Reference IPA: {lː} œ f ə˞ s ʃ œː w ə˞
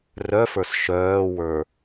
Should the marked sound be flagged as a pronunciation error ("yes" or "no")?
yes